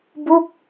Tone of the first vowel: falling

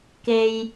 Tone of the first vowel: low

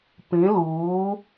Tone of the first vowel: rising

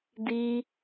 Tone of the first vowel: high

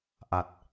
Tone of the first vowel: low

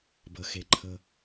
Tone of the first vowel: low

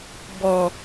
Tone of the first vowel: low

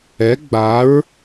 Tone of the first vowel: rising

